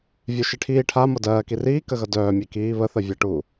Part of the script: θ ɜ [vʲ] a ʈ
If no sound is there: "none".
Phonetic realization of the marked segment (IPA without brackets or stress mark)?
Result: vʲ